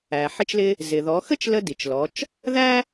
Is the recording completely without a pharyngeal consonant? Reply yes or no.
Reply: no